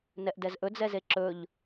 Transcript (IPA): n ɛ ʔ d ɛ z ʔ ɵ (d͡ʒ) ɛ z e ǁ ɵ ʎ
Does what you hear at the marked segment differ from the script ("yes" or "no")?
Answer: yes